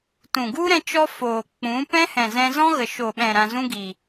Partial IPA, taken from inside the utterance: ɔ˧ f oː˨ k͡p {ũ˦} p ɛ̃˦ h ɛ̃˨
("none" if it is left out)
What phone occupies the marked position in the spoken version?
ũ˨˦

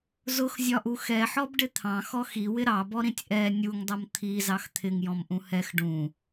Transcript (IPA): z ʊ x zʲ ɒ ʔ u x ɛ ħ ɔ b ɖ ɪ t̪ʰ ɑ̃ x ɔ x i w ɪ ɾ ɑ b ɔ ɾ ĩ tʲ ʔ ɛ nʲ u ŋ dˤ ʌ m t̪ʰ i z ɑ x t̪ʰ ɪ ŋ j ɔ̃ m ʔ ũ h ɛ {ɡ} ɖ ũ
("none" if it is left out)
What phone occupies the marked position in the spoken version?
x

